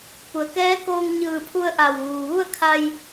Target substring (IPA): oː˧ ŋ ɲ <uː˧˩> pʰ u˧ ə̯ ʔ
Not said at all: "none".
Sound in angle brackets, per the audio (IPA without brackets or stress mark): ɯː˧˩